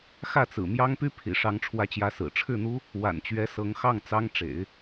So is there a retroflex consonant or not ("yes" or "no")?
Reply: yes